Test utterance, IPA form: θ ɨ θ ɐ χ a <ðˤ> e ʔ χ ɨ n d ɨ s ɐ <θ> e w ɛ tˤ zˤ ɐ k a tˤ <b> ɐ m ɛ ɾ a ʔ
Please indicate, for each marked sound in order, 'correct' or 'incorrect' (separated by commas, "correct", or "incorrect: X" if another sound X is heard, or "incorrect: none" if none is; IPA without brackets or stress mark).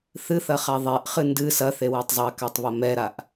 correct, correct, incorrect: β